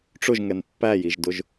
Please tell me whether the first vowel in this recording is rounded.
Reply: yes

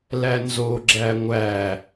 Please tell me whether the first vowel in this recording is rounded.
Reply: no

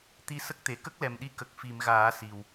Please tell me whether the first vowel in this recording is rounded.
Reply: no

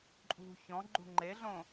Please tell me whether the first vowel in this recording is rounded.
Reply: yes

